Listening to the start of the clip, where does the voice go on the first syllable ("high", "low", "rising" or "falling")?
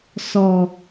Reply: low